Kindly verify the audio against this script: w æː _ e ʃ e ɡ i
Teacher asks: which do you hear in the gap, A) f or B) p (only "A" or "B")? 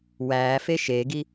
A